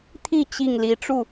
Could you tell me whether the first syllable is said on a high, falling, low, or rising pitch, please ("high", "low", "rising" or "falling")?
falling